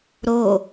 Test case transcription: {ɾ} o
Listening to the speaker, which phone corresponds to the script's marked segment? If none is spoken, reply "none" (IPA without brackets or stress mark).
ɾ